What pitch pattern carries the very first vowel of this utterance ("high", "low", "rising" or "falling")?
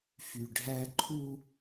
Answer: low